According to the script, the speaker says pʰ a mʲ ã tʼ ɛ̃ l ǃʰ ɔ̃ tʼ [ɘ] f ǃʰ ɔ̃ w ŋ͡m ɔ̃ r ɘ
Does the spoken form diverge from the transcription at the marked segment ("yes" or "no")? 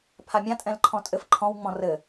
no